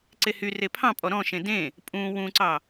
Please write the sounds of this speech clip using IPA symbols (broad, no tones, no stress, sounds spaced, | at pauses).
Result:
ǀ e h y r e pʰ ɑ̃ pʼ ɔ ɾ ɔ̃ ʃ ẽ d ẽ | pʼ ũ w ũ ǀ ɑ